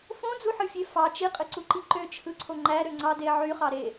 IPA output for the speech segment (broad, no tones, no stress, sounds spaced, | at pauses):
f õ d͡z u ħ ɯ fʲ e f ɑ t͡ʃ i qʼ ɯ ǀ u ǃ i ǃ ø t͡ʃʰ ɯ ǀʰ o ŋ͡ǃ æ ɾ ø ŋ͡ǀ ɑ d e ʕ y χ ɑ ɾ e